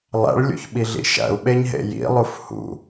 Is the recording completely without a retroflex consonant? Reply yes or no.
no